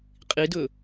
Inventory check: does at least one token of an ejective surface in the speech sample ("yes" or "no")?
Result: yes